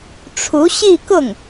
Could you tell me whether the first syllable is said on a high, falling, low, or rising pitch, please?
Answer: rising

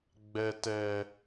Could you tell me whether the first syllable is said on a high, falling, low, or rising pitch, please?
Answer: low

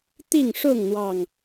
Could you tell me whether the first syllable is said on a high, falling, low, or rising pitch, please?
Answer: falling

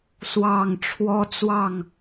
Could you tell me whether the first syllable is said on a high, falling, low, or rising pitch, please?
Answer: falling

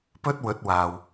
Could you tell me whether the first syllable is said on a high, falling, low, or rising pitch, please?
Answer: high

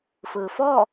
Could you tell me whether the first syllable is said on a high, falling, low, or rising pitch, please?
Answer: low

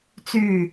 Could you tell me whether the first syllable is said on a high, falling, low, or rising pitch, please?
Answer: low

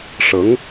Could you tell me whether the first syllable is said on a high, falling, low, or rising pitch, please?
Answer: rising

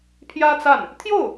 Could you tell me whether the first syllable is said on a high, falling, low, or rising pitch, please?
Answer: high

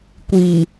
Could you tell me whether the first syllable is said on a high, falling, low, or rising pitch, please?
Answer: low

